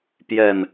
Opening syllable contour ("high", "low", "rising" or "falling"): low